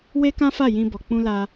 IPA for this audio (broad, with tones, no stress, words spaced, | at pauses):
we˦kã˦fa˦˨ jĩ˧bɔ˨ k͡pũ˧la˧